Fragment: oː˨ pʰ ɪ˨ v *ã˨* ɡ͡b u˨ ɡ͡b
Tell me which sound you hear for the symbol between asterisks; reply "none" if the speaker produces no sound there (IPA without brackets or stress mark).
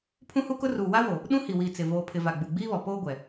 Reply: a˨